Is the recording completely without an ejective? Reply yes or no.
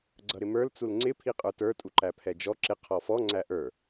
no